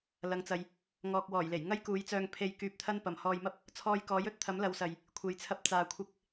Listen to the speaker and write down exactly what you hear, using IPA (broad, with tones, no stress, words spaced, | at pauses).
lɐ˨˧ŋt͡sɐ˨j | ŋɔː˨k̚wɔː˨˩jle˨˩j ŋɐ˥jkuː˨˥jt͡sœː˧ŋ pʰe˨j kyː˨p̚t̪ʰɐ˧n pɐ˨mhɔː˧jmɐ˥p̚ | t͡sʰɔː˧jkɔː˨˥jɵ˥t̚ t̪ʰɐ˨˥mlɐ˨˧wsɐ˨j | kʷʰe˨jt͡sʰɐ˧p̚ t͡saː˨kʷʰɪ˧k̚